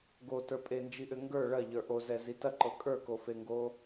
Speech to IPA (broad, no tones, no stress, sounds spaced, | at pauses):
ɡ o t ə˞ pʼ e n d͡ʒ i ʔ ʏ ŋ ɡ ə˞ ɭ ɐ ʎ ə˞ ʔ o z ɛ z i t ɐ ǃ ɤ kʼ ə˞ k o f e ŋ ɡ o